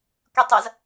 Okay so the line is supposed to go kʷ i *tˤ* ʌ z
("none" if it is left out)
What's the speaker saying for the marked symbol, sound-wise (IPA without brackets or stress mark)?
tˤ